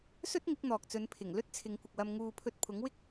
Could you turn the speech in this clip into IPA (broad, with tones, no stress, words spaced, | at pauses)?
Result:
sɵ˥t̚ŋɪ˨˥k̚n̪ɔː˨k̚t͡sɵ˨˧n pʰɪ˨˩ŋlɵ˥t̚ t͡sʰɪ˨˧ŋkʷɪ˨k̚wɐ˧m ŋuː˨ pʰɵ˧t̚pʰʊ˨˥ŋwɪ˥k̚